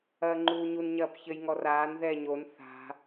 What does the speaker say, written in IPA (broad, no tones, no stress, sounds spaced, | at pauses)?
ɐː ŋ͡ǃ uː ɲ u n ɲ ɐː p ç ɘ j ŋ ɔ r aː n ð ɛː ɲ o n θ a̤